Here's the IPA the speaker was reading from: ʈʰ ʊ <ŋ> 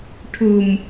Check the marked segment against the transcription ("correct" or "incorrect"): incorrect